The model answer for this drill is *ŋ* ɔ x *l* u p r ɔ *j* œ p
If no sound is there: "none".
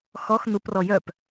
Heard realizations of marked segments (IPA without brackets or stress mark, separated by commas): x, n, j